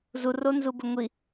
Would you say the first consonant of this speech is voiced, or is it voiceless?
voiced